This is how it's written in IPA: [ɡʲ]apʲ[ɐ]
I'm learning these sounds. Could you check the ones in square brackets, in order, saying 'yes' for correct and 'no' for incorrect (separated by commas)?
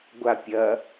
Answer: no, yes